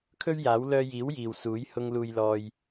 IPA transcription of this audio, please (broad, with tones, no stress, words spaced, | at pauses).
kʰɵ˥ɥjaː˨˥w lœː˧jiː˨˥w jiː˨wsuː˨˥j hʊ˧ŋluː˧jlɔː˧j